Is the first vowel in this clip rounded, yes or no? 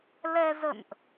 no